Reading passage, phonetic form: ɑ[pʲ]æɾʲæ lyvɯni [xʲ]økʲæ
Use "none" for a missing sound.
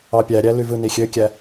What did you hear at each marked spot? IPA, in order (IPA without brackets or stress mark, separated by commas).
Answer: pʲ, xʲ